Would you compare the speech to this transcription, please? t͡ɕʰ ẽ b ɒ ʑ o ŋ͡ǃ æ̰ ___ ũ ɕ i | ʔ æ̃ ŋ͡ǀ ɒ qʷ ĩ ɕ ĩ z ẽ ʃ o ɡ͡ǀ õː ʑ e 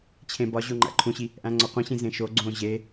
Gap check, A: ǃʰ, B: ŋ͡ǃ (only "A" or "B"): A